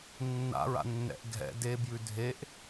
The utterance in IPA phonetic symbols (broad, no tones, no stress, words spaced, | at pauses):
nːa̰ɹa̰nːɛ̰ʔ ɡʱɛ̰ debjʉ dʱeʔ